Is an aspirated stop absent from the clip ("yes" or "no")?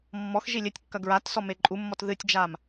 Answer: yes